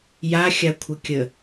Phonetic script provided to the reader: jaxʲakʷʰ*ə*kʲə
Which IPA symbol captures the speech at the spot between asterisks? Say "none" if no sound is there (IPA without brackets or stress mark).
ə